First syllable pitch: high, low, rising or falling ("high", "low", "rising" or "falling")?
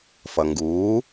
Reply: low